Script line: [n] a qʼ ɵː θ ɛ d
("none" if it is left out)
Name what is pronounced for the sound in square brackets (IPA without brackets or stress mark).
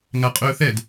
ŋ